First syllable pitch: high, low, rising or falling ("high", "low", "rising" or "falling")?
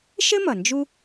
high